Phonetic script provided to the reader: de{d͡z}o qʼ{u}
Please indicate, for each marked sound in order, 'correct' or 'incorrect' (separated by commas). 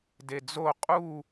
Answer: correct, correct